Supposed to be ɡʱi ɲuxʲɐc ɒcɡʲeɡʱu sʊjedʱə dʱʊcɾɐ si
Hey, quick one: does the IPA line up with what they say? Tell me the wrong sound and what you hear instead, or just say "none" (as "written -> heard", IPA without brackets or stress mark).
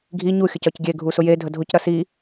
none